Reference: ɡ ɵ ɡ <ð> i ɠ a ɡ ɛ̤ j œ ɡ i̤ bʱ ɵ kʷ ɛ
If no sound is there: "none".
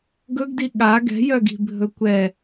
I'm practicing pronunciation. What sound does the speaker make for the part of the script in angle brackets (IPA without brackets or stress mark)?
d